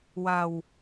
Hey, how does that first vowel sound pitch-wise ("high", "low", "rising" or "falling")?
low